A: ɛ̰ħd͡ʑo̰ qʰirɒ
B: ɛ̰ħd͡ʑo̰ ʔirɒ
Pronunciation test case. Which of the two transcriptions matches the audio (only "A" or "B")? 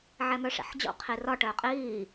A